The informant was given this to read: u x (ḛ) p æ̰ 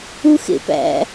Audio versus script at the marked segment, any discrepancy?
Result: no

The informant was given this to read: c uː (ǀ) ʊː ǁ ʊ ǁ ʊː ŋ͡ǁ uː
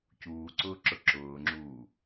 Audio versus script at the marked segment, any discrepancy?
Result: no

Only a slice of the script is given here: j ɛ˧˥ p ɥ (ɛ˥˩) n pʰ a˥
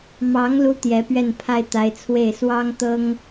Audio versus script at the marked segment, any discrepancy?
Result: no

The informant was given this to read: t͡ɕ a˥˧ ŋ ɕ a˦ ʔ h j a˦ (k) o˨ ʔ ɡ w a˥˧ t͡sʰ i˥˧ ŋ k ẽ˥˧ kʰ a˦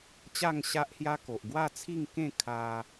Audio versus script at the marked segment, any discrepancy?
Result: no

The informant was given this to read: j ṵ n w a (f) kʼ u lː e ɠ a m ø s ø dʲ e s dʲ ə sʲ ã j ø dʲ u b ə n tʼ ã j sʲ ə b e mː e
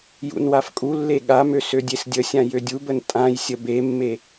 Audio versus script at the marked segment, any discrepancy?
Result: no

